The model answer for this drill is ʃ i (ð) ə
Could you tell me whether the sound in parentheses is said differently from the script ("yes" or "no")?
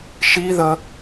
no